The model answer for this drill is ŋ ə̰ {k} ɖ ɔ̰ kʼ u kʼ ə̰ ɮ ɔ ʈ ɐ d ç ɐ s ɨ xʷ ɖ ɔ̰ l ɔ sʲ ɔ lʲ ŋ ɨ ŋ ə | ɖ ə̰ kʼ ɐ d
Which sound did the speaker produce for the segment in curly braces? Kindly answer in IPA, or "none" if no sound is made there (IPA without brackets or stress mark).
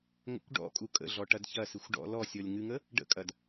kʷ